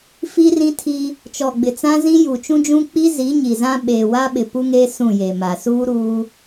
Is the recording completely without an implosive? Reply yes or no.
no